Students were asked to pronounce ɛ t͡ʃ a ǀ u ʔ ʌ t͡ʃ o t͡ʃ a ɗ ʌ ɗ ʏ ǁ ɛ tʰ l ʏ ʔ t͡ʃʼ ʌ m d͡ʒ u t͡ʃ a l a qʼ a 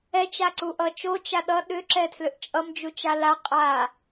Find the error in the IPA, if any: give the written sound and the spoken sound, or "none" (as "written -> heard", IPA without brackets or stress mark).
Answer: none